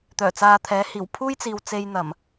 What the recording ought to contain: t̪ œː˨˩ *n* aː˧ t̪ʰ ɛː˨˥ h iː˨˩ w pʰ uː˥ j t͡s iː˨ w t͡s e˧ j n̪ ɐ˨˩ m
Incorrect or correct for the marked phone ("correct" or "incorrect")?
incorrect